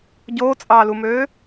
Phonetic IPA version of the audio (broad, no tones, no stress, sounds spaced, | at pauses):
ɟ oː t͡sʼ ɑː l u m øː